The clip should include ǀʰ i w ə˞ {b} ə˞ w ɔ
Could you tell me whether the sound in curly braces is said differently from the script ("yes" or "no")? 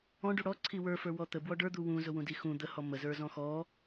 yes